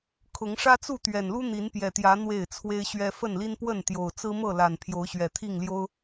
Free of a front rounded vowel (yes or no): yes